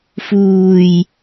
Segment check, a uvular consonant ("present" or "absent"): absent